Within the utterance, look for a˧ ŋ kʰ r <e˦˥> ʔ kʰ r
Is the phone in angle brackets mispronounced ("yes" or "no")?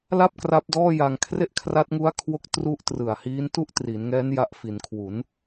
yes